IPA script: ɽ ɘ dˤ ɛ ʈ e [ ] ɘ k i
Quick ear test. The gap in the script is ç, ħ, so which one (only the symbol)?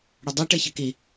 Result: ç